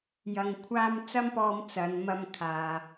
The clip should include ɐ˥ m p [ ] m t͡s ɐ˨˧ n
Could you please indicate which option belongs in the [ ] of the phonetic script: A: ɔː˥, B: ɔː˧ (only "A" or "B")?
B